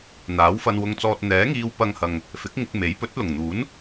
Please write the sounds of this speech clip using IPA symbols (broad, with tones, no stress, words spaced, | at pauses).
n̪aː˨˥wfɐ˧nwʊ˧ŋt͡sɔː˧t̚ n̪ɛː˨˥ŋiː˧w pɐ˧ŋhɐ˨ŋ | fɪ˨˥k̚ŋɪ˧k̚me˨˥j pɵ˨˥t̚lʊ˨˩ŋn̪uː˨˥n